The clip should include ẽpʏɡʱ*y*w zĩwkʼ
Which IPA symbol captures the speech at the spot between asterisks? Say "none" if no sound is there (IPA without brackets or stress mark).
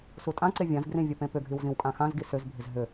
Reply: y